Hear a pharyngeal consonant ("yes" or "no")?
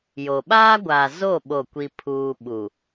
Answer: no